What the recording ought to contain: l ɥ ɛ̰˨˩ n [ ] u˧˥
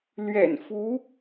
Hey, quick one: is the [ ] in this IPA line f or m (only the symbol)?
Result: f